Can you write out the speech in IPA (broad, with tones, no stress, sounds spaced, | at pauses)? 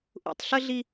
ʔ ṵ˨ tˤ ɬ ə˦ ɮ i˦